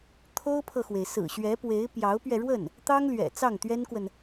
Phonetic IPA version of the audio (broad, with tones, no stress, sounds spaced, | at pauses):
t̪ʰ o˥ ʊ̯ pʰ ɤ˨ x w e˩ ɪ̯ s ɹ̩˨˩ ɕ ɥ ɛ˧˥ p w e˧˥ ɪ̯ p j ɑ˧˥ ʊ̯ p ɥ ɛ˧ ɻ w ə˥˩ n | t̪ ɑ˥ ŋ l ɥ ɛ̰˨˩ t͡s ɑ˥˩ ŋ t̪ ɥ ɛ˥ n k w ə˨ n